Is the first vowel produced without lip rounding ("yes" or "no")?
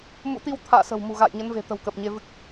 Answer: no